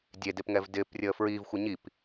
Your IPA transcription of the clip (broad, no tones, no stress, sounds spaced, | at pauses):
dʲ e d e p ŋ ɛ v d ɪː p rʲ əː f ɹ iː v xʷ ɪ ɲ i p